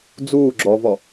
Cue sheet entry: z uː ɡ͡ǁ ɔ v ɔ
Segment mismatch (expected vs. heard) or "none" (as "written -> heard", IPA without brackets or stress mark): z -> d͡z